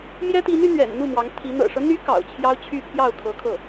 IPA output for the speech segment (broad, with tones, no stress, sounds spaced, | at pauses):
m j ɛ˥ t̪ i˧˥ n y˧˥ n̪ ɥ ɛ̰˨˩ n n̪ u˥˩ m w ɑ˧˥ ŋ t̪ʰ i˧˥ n̪ ɤ̰˨˩ ʂ ɤ˦ n̪ y˧˥ k ɑ̰˨˩ ʊ̯ t͡ɕʰ j ɑ˥ ʊ̯ t͡ɕʰ y˥˧ pʰ j ɑ˥˩ ʊ̯ kʰ ɤ˧˥ kʰ ɤ˥˩